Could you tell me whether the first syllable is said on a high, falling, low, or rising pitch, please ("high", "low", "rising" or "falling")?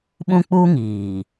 high